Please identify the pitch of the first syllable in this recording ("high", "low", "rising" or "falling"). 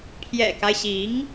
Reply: low